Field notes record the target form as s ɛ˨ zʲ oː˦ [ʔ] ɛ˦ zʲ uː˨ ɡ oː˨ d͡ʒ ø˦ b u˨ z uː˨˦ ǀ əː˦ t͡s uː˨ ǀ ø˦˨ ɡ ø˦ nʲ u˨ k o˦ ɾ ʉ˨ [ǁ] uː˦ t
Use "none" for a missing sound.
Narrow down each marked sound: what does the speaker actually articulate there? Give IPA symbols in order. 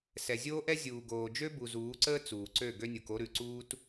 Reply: ʔ, ǀ

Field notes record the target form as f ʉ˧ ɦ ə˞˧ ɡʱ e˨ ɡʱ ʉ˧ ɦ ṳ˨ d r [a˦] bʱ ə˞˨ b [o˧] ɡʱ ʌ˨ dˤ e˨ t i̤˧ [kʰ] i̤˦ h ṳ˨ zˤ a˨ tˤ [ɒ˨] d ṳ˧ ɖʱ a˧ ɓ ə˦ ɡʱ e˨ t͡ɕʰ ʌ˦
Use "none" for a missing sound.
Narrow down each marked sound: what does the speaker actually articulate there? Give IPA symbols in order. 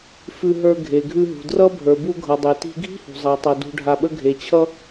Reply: ʌ˦, u˧, ɡʱ, ʌ˨

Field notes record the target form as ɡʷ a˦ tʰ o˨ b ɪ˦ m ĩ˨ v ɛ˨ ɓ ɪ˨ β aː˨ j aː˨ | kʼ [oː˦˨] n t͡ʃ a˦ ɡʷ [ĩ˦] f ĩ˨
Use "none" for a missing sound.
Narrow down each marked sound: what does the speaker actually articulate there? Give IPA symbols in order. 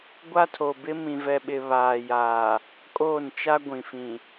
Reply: oː˦˨, ĩ˨

